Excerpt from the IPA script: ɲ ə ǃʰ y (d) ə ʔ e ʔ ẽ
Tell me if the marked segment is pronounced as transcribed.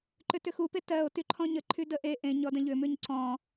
yes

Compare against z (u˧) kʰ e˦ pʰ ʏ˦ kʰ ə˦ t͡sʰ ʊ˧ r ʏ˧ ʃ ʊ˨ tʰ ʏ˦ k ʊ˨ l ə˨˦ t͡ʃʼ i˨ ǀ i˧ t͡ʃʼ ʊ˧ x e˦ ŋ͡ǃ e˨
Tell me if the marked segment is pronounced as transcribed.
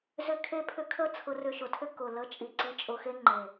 no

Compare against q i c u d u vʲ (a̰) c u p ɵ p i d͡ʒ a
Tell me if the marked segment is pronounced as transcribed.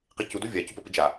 no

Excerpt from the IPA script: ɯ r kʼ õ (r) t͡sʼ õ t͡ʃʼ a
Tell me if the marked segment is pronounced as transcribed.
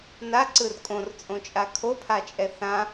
yes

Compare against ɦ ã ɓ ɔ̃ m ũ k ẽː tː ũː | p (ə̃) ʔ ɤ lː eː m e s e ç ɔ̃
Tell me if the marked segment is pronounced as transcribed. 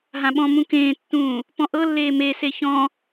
no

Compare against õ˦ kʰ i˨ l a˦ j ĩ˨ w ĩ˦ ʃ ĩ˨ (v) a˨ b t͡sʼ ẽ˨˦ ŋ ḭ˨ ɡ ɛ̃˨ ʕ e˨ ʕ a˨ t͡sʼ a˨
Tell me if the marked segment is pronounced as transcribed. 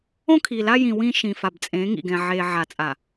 no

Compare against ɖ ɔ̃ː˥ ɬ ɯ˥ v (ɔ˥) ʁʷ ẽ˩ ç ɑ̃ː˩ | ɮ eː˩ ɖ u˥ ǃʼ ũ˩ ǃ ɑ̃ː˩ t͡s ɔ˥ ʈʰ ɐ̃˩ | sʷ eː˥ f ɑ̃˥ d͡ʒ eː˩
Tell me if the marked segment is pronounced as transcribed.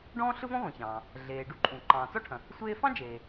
no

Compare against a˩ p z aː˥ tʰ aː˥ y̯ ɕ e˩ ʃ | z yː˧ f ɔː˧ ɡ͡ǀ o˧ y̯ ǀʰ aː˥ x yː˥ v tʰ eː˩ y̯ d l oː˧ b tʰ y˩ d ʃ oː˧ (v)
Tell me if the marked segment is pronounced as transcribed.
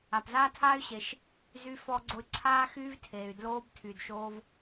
yes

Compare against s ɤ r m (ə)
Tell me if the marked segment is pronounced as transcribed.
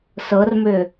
no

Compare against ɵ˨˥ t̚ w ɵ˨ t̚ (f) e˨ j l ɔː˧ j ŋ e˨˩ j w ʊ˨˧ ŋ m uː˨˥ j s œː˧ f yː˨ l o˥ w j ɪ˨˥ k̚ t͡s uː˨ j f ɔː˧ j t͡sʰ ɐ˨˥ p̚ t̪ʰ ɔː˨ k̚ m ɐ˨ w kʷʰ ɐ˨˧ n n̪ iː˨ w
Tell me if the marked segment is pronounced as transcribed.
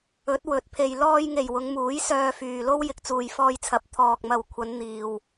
no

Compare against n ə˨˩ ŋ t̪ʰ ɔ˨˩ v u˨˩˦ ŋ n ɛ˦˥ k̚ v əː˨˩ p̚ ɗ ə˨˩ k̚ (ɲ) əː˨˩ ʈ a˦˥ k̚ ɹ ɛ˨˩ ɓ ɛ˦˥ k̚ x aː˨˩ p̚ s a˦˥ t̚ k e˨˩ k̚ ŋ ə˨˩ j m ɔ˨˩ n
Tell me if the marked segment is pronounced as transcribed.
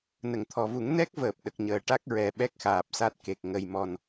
yes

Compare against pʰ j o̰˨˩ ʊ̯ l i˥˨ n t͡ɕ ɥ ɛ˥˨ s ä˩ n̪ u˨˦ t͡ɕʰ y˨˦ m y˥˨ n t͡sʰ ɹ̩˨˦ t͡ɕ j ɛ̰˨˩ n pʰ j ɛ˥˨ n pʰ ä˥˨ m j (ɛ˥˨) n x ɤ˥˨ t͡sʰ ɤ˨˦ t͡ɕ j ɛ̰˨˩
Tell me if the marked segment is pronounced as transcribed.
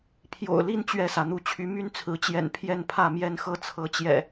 yes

